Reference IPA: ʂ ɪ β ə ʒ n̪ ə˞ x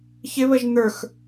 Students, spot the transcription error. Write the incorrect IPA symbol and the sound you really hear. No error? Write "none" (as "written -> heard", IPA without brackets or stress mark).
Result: ʂ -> ç